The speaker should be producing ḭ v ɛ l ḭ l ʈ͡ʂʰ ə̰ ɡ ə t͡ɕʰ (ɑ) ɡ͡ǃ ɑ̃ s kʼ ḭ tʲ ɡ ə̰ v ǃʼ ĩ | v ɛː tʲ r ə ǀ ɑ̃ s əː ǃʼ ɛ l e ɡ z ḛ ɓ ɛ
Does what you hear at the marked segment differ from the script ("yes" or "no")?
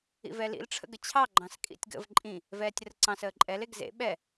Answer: no